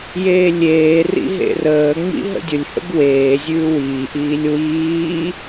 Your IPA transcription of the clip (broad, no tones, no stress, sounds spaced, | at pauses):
j eː lʲ eː r ḭ ɦ ḛ r əː ŋ͡m ḭ ɦ ə̰ dʲ ʊ lʲ h ə̰ b w eː zʲ ʉː w iː ʔ iː lʲ w iː